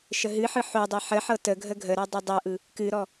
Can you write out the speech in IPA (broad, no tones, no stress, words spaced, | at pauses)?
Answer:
ʃəɦɨħɯ ħodˤɤ ħəħɤ tə ɡʱəɡʱəɾɤ dˤɯdˤɤʔɯ | kɨɾɔ